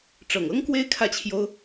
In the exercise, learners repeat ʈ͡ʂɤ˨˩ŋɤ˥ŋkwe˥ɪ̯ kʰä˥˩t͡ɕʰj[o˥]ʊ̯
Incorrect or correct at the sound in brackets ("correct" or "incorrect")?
correct